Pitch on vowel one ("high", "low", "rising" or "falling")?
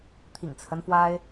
low